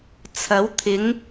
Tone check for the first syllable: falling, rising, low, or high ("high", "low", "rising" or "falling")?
rising